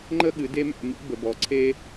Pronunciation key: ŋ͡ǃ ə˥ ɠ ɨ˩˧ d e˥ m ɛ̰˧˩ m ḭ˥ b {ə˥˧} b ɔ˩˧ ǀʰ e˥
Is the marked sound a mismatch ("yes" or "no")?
yes